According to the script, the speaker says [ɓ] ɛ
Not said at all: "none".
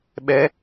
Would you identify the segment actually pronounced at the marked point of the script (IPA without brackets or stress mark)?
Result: ɓ